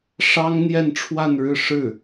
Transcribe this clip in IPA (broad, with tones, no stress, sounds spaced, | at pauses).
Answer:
ʂ ɑ˥ ŋ n̪ j ɛ˥˧ n ʈ͡ʂʰ w a˥˧ n ɻ ɻ̩˥˧ ʂ ɻ̩˥˩